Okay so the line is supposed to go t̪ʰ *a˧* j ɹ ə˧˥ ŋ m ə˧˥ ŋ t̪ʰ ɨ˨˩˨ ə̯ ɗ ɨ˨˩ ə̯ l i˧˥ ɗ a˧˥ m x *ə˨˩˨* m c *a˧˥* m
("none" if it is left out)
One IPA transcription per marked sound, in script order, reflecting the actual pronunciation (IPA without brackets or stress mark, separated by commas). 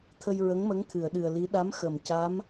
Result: ə˧, ə˨˩˨, a˧˥